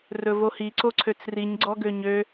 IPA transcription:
r ɵ v o h i ǀ o ǀʰ ø t͡s r i ɲ ɡ͡ǀ ɔ ɡ ø ɲ ø

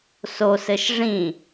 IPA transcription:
s o s ɘ ʃ ʐ ĩ

